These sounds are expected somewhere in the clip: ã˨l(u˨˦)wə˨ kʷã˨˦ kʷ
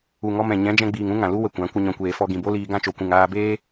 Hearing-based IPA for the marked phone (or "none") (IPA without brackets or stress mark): u˦